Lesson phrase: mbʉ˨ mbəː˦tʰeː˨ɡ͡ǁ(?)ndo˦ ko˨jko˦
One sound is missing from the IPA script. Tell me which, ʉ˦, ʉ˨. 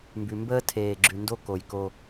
ʉ˨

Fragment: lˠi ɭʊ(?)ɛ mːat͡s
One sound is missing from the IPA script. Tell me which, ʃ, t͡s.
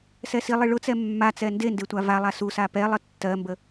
t͡s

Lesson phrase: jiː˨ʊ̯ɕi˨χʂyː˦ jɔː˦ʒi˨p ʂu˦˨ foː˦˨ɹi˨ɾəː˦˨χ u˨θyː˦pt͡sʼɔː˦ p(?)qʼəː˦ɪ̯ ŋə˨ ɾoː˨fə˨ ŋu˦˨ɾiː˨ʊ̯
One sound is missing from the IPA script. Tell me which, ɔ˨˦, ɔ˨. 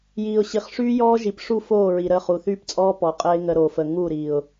ɔ˨˦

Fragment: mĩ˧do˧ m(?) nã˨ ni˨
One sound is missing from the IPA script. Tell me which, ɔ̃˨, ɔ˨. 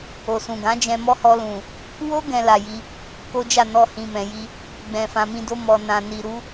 ɔ˨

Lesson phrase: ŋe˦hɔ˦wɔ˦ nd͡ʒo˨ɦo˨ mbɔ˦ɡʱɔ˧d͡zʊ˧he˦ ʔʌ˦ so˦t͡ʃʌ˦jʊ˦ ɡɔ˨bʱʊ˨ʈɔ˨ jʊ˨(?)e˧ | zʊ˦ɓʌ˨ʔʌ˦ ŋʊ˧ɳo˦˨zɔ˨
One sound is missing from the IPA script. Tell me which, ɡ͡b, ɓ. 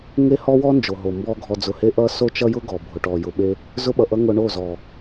ɓ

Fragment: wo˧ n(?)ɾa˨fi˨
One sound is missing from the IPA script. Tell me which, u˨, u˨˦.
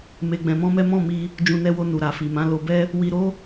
u˨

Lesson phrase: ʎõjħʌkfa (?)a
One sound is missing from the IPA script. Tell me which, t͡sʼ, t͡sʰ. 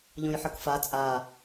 t͡sʼ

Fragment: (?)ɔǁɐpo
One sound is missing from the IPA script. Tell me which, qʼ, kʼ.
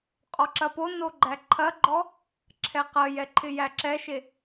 qʼ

